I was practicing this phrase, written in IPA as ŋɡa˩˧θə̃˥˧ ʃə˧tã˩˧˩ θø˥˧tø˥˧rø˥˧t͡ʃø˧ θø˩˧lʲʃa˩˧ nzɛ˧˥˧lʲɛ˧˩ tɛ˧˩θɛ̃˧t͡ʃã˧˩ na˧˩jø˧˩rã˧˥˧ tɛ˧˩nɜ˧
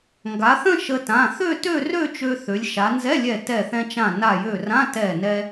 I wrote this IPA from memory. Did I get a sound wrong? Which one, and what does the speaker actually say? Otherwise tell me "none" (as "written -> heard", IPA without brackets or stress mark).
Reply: ɜ˧ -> ɛ˧